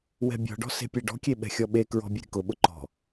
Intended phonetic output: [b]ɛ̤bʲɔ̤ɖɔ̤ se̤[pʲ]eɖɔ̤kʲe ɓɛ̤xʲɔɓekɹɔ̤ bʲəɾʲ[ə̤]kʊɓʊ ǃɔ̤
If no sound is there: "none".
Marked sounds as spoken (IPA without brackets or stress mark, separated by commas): w, pʲ, ə̤